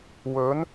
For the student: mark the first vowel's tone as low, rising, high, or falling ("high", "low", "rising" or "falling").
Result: rising